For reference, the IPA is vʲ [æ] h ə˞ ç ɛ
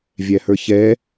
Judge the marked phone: correct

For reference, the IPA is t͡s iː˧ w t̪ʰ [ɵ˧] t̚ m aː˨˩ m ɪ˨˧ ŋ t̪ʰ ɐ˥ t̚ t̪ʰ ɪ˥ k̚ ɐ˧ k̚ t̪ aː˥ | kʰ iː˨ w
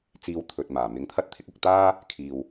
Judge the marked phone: incorrect: ɵ˨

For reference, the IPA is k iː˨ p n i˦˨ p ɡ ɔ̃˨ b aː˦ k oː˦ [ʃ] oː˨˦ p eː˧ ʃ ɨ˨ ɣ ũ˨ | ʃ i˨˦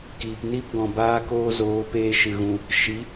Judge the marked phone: incorrect: z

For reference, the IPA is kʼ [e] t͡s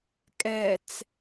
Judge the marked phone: incorrect: ɛ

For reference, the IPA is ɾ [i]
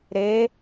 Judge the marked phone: incorrect: e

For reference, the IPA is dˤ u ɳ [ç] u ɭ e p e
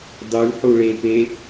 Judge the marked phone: incorrect: ħ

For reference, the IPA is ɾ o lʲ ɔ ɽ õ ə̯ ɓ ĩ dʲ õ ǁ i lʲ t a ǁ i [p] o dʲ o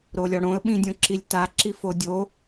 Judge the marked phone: incorrect: f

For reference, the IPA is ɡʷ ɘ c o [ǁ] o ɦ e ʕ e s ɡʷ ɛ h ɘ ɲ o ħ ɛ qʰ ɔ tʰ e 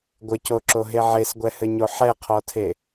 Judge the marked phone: correct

